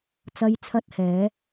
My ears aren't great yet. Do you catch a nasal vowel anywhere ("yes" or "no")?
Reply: no